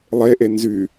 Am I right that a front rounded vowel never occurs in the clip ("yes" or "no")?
no